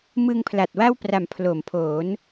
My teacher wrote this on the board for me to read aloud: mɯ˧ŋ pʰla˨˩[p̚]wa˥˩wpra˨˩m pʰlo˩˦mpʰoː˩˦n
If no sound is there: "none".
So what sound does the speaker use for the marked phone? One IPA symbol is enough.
t̚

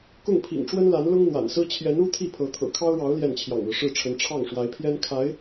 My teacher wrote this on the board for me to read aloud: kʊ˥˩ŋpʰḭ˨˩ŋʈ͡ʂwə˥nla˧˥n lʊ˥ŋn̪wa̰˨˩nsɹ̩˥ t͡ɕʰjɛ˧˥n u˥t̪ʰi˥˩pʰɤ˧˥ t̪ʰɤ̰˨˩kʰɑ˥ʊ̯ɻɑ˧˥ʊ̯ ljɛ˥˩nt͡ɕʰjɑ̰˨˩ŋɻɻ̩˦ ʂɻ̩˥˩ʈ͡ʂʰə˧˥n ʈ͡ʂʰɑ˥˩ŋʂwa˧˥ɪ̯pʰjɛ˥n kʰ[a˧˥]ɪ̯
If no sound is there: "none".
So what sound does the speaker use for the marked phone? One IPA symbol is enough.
a˧˥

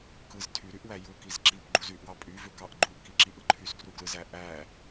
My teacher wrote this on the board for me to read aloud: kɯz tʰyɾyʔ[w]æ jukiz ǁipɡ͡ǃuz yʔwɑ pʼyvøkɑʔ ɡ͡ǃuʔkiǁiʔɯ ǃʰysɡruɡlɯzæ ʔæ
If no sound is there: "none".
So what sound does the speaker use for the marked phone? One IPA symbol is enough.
w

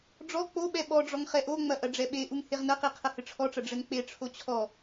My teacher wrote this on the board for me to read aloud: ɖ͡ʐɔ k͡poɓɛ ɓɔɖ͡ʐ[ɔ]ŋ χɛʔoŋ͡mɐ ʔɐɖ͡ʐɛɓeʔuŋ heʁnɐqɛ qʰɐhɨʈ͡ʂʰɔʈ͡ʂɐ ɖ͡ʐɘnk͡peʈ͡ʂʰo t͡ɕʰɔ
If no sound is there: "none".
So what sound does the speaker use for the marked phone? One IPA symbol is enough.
ɔ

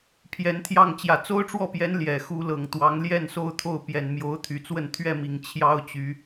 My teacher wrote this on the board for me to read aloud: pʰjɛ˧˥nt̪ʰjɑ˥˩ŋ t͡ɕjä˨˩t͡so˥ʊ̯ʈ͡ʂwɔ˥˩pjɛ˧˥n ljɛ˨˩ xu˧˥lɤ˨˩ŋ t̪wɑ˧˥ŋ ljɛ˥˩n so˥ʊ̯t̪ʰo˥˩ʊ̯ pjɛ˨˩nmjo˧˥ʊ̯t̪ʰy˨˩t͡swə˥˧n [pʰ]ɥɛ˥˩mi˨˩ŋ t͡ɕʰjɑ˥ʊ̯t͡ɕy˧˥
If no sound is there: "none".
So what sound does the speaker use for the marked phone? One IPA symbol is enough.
t̪ʰ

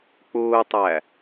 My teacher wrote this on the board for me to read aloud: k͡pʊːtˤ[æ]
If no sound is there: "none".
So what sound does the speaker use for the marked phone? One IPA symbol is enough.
æ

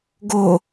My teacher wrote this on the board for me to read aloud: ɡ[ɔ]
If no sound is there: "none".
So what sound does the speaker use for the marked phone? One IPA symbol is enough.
o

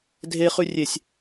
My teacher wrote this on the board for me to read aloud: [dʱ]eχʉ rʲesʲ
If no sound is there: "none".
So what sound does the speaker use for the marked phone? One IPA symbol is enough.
dʱ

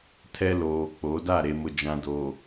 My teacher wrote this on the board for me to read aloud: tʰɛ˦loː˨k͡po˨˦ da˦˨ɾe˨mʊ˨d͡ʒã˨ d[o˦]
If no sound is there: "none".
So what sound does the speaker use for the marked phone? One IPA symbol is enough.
o˨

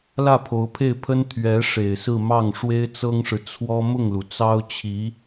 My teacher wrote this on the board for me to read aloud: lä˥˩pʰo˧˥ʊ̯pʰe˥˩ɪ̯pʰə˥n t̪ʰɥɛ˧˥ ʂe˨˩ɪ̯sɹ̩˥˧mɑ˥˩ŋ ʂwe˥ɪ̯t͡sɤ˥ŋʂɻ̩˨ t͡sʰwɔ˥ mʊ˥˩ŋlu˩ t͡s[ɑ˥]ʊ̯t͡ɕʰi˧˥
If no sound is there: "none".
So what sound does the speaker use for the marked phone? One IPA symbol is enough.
ɑ˥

